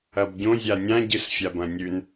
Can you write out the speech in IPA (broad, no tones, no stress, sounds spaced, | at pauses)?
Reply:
ɐ b ɟ õ zʲ a nʲ ã ɟ ɨ s fʲ a b ɐ̃ nʲ ʉ n